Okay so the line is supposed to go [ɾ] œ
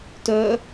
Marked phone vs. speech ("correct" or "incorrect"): incorrect